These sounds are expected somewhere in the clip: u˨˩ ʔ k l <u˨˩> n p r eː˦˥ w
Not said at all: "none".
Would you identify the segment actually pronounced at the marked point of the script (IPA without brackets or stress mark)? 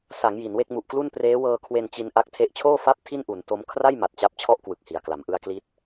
u˥˩